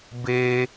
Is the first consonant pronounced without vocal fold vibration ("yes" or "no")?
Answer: no